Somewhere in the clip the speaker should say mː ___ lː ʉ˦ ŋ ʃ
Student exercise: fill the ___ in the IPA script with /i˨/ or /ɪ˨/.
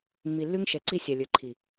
i˨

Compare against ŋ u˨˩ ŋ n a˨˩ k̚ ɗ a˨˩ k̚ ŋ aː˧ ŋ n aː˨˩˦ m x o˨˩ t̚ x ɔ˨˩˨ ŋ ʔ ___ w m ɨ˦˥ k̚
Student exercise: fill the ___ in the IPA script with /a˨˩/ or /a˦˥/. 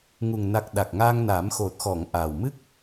a˨˩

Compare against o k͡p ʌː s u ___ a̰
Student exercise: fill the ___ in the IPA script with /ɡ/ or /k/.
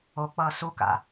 k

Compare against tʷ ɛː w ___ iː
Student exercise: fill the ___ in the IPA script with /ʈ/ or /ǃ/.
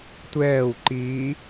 ǃ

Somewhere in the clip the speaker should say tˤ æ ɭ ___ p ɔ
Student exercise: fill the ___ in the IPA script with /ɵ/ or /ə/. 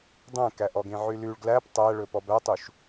ɵ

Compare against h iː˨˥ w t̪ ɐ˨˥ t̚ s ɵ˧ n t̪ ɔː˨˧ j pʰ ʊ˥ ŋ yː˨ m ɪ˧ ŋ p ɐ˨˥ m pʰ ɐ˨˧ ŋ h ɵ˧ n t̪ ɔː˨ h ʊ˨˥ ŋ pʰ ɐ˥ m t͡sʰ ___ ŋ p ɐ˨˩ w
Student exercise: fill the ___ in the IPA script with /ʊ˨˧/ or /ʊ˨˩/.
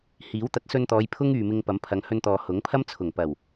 ʊ˨˩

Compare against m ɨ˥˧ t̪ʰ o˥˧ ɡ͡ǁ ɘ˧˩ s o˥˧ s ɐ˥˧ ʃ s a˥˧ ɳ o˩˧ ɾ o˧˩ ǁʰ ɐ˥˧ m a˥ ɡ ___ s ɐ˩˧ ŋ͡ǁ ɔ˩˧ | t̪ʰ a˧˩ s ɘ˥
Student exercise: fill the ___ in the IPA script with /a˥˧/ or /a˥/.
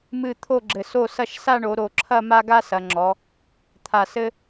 a˥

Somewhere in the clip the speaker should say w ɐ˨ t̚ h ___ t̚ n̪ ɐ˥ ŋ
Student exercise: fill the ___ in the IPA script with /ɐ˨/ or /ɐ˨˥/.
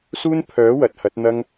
ɐ˨˥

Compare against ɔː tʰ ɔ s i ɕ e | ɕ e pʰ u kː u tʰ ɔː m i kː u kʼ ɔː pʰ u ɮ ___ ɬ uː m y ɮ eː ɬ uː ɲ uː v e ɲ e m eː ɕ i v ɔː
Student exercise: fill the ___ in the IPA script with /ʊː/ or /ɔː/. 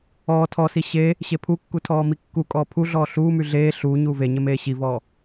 ɔː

